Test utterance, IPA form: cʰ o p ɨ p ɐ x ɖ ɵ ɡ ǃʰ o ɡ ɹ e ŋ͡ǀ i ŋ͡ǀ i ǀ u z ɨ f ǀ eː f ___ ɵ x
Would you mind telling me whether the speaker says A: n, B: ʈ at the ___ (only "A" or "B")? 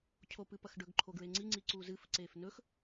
A